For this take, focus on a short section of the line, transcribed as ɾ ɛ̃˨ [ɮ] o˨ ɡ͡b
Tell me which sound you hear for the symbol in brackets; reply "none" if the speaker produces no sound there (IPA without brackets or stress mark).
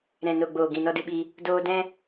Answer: n